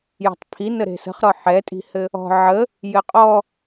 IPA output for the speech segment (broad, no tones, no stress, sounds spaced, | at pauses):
j ɔ̤ tˤ pʰ i n ə ɾ e̤ s ə̤ χ ɾ ɔ ħ ɛ tʼ i̤ h ɘ | ɔ̤ ʕ ə | j ɘ qʼ ɔ